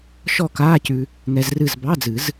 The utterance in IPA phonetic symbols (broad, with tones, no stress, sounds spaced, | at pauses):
ʃ ɔ˥˩ k aː˧˥˧ c ʉ˧ | ŋ ɛ˧ z r ɨ˥˩ z b ɑ˧˥˧ d͡z ɨ˨˩˦ z